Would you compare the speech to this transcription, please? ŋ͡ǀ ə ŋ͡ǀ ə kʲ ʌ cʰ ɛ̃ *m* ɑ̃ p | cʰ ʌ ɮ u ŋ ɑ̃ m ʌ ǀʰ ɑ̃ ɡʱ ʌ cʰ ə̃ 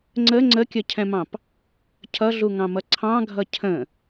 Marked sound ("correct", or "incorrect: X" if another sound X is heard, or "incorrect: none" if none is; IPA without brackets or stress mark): correct